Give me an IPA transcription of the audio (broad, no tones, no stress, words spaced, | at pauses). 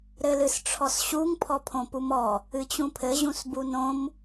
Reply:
ɾɘlɨsʈ͡ʂʰɔsɕuŋ pʰɔpʰõpumɔ | ɨt͡ɕũpʰɘ ʑũsbunõm